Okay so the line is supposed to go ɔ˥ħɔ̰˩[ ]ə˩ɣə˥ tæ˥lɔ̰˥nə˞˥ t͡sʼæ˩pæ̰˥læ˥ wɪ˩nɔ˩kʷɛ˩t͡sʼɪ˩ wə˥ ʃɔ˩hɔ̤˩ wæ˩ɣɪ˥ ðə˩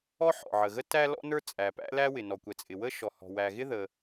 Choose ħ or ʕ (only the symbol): ʕ